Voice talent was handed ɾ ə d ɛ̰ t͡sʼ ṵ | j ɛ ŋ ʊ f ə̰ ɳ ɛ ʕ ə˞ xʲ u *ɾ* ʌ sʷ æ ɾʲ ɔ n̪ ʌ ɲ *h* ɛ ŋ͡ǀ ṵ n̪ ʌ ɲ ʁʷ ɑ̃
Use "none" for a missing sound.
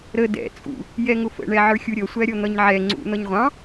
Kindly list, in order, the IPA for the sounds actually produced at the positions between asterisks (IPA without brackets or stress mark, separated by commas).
ɾʲ, ʕ